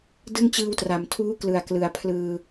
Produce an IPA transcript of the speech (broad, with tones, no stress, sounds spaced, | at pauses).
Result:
d ɯ˥˩ ŋ t͡ɕ ɯː˧ w t r a˩˦ m tʰ uː˦˥ k l ɯ˨˩ a̯ k l ɯ˨˩ a̯ pʰ l ɯː˧